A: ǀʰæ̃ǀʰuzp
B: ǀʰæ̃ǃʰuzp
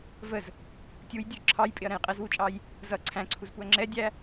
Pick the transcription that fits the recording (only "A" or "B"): A